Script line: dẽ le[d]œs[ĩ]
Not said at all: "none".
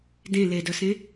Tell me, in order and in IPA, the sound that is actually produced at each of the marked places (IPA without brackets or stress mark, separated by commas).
d, ẽ